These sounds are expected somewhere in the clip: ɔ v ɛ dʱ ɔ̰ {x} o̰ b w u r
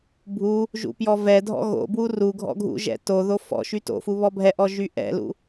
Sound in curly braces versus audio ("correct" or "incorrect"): incorrect